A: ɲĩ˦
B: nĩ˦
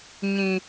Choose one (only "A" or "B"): A